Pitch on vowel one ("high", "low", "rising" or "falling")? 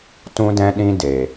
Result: high